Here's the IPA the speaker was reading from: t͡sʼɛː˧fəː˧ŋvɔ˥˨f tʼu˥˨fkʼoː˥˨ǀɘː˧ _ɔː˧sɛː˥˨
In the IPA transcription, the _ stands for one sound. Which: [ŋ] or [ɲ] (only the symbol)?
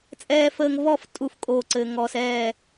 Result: ŋ